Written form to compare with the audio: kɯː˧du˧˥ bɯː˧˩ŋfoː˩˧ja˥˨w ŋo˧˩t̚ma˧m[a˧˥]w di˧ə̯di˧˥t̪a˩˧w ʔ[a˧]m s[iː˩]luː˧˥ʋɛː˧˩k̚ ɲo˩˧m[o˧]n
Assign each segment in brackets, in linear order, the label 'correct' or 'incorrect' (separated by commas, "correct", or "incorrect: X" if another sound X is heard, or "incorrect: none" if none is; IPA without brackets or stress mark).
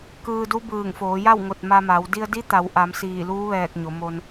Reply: incorrect: a˩˧, incorrect: a˩˧, incorrect: iː˧˩, correct